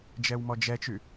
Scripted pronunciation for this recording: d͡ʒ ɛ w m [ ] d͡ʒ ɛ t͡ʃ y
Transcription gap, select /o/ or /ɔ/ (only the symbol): ɔ